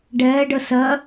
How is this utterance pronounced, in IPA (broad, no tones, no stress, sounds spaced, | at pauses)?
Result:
ɖ ɛː ɖ ə s ɜ